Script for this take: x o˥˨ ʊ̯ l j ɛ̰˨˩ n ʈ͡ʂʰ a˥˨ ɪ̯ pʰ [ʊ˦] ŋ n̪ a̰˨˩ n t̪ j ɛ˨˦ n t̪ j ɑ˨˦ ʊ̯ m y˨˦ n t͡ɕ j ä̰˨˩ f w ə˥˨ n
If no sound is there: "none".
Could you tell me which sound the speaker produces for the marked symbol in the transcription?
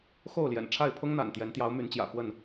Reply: ʊ˦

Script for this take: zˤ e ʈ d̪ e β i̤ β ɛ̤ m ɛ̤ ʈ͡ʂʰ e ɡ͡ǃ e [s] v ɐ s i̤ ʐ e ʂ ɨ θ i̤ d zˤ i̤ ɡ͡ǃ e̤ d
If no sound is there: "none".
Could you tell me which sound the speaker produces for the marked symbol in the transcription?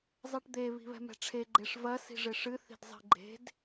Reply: ʂ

